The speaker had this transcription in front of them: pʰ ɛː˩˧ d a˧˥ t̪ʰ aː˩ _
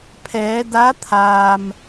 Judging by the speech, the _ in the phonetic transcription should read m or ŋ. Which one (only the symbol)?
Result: m